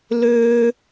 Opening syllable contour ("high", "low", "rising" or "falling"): high